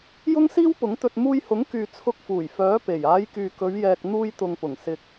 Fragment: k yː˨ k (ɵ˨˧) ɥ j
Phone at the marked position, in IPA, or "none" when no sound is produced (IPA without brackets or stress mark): ɵ˨˧